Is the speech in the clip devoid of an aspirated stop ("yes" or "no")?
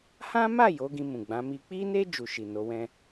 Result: yes